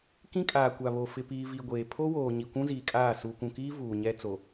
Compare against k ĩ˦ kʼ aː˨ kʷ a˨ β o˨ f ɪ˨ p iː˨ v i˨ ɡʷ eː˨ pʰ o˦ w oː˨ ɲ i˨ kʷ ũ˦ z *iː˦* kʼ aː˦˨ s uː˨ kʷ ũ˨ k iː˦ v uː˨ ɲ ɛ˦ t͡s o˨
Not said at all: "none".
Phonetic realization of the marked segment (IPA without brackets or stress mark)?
iː˨